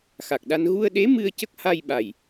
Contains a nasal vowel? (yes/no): no